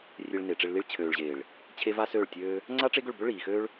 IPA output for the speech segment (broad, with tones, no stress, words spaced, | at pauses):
rʲe˧ɭne˨ʈ͡ʂe˧ɭli˦ɭ t͡ɕʰøː˨ɭʑeː˨ɭ | t͡ɕʰe˦va˦søː˦˨ɭtʲøː˦ | ŋ͡ǀa˦ʈ͡ʂe˦ɡʏ˦˨ɭbʏ˦ ɭiː˨xøː˦ɭ